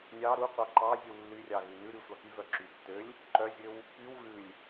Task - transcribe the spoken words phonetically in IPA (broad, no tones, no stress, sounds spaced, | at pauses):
nʲ ɑ ɾ u qʷ ɑ ǃ ɑ zʲ u lː y rʲ ɑ ɣ ʉ n ʉ ɾ y sʷ ɑ k y v œ ǁ y tː ø lʲ | ǃ œ zʲ ø w | p y w ɣ ʉ lʲ